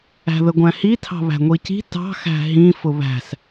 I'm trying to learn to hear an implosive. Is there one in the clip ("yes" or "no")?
no